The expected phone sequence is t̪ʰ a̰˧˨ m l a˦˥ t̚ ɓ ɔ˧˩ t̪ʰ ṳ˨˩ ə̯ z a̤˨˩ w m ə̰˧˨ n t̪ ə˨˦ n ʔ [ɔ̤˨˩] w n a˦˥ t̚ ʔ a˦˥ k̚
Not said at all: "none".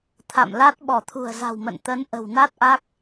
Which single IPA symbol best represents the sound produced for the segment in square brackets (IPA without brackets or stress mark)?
ə̤˨˩